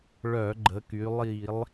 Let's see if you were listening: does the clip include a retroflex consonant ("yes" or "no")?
yes